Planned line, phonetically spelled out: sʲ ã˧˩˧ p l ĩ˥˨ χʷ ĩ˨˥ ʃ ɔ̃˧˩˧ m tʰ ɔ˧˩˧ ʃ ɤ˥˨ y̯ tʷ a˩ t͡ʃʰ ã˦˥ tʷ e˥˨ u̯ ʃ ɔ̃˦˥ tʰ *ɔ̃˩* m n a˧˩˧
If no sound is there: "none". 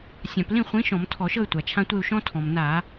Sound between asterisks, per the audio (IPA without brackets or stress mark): ɔ̃˩